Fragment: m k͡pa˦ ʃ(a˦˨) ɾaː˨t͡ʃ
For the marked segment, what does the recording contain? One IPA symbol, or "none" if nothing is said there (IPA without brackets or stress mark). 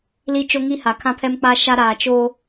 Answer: a˦